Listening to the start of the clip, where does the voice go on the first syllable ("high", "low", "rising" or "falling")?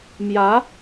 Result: rising